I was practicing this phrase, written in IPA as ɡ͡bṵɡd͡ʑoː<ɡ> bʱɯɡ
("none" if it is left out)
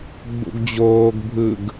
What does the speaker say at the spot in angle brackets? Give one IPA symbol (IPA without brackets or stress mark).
ɡ